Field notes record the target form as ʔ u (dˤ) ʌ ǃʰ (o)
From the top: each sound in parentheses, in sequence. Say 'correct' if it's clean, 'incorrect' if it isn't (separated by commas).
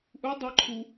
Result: correct, incorrect